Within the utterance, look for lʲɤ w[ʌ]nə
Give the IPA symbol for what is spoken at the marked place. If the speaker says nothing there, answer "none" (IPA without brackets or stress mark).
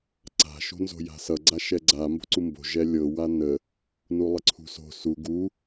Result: a